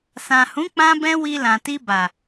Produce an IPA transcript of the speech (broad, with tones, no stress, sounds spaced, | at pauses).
s ã˨ h ũ˨˦ k͡p ã˦ b ɛ̃˦ w i˧ l ã˨ t i˧ b a˨